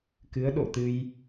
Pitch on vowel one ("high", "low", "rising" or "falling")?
rising